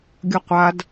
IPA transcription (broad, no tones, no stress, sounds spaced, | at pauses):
ɡʲ ʌ qʷ a d